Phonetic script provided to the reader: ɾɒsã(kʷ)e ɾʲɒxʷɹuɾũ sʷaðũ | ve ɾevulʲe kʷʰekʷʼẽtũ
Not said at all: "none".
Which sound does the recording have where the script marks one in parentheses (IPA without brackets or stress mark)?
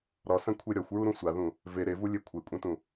kʷʰ